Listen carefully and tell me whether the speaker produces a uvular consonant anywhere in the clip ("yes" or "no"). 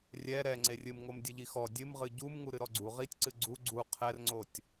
yes